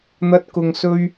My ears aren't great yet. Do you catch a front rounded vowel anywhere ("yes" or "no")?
no